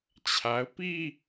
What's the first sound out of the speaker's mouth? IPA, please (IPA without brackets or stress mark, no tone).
t͡ɕʰ